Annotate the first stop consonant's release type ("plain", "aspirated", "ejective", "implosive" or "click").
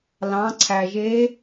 click